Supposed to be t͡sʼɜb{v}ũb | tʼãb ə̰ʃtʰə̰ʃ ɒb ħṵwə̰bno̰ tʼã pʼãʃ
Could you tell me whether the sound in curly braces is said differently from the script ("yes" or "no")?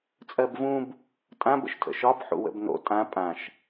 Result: no